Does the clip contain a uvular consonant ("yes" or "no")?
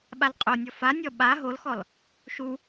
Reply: yes